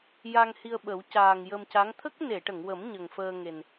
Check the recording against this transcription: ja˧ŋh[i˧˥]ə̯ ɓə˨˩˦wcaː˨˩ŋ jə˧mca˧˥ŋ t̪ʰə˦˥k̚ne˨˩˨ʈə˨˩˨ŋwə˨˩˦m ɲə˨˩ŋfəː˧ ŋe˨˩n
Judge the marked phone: incorrect: i˧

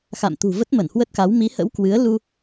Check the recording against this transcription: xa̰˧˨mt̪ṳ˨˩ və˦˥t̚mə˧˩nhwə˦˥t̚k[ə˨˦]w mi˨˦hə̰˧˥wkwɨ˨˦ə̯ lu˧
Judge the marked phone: incorrect: a˨˦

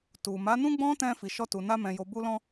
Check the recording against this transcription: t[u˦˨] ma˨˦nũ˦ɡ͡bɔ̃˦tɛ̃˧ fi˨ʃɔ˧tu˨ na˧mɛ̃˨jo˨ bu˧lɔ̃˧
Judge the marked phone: incorrect: u˨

